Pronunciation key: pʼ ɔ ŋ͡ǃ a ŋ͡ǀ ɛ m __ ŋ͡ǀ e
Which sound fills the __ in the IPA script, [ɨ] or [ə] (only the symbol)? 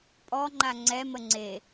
ə